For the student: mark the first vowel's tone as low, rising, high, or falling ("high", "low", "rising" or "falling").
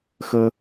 high